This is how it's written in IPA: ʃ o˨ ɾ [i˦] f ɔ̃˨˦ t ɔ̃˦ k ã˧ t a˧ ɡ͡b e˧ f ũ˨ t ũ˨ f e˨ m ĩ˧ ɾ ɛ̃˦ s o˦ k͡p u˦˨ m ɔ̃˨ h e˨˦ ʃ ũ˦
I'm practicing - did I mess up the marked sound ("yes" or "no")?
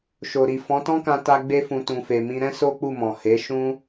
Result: yes